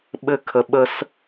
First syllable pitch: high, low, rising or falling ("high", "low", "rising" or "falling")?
high